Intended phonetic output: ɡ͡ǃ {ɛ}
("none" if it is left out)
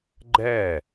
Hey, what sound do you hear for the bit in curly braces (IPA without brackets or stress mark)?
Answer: ɛ